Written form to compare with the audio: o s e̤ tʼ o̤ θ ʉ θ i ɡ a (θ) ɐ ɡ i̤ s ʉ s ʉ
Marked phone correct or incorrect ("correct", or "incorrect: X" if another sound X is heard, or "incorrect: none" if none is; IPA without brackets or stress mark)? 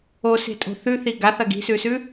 correct